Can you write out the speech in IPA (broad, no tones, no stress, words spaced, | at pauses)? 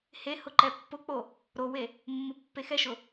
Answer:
hehʊǃɛ pːʊk͡po | ɾowe | mːʊpːexɛʃʊ